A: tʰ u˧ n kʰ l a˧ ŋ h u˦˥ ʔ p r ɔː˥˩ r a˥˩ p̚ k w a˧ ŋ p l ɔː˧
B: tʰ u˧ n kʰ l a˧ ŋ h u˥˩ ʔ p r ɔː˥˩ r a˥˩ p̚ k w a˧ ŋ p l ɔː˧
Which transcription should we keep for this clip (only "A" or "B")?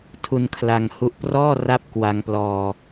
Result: A